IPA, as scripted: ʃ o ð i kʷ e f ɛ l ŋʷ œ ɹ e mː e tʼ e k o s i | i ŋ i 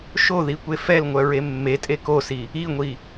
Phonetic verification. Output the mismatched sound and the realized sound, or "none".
ŋ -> ŋʷ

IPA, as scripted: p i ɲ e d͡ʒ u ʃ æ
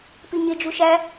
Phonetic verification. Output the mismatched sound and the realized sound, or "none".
none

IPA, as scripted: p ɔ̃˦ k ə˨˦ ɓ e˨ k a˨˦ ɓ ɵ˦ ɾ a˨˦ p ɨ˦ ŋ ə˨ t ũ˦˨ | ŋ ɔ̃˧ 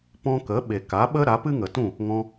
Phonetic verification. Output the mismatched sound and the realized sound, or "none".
ɵ˦ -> ə˦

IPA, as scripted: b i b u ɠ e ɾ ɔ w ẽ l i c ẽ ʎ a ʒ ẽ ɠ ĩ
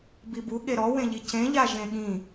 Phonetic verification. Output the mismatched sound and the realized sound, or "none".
l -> ʎ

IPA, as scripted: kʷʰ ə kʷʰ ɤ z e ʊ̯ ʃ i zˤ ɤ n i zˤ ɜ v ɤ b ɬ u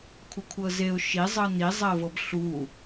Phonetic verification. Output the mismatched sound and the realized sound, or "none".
none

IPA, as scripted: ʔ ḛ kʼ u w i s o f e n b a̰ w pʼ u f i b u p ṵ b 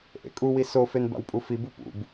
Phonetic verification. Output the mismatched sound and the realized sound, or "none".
none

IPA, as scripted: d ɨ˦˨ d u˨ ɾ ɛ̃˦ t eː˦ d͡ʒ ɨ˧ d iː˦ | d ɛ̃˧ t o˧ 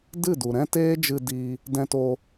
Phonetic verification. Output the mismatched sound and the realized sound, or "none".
iː˦ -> iː˧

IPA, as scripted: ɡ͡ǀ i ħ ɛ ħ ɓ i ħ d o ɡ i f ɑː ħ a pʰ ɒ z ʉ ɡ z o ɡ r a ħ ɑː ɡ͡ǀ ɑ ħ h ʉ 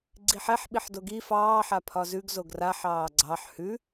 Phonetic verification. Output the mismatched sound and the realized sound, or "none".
none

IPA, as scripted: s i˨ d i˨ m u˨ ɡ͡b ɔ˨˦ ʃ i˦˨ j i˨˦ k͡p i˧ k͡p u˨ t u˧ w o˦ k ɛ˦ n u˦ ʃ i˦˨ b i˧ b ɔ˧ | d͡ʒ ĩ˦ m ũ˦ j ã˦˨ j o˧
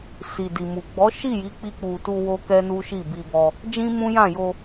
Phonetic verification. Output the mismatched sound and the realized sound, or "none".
none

